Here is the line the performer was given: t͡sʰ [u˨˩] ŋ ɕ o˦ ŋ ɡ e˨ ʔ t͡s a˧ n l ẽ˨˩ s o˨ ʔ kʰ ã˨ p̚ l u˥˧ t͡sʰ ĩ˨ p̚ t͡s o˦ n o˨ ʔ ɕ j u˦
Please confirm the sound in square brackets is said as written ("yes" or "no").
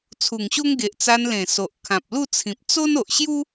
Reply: yes